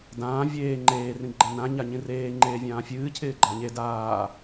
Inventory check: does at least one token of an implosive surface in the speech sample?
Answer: no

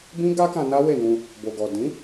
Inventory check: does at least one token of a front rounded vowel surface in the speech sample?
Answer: no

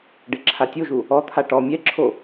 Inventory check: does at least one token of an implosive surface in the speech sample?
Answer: no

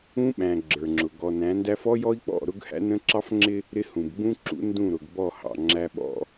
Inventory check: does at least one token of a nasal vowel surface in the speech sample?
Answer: yes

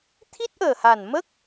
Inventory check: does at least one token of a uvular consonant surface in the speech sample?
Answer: no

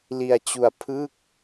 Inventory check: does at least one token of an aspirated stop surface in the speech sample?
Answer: yes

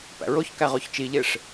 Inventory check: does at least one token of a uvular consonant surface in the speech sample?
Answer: yes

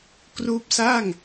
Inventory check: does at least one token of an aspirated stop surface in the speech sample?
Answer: no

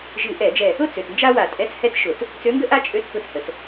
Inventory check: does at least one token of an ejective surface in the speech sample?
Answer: yes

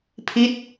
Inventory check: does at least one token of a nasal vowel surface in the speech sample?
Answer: no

